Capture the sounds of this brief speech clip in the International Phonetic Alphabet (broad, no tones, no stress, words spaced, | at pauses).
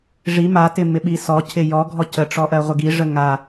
ʐi matɪmɪɓi sɔcʰɪ jɔɡʱɔ cəʈ͡ʂɔʔɜʁʷɪ ɡiʐə ŋa